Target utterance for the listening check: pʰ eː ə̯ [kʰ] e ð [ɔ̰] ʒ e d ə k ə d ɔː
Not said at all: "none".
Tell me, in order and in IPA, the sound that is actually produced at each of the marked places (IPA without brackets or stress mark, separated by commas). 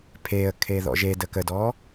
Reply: kʰ, ɔ̰